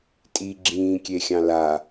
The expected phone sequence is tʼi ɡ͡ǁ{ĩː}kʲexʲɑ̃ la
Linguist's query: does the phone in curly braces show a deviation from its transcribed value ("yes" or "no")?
no